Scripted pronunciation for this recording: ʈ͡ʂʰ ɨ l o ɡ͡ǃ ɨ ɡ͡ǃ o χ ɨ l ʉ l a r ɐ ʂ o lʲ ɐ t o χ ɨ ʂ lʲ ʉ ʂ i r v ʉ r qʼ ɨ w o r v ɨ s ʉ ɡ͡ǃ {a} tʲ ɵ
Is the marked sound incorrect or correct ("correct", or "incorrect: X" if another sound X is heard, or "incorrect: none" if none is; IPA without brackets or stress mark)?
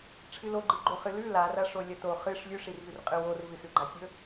correct